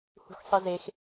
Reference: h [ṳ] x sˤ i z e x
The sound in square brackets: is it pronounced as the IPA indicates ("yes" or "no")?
yes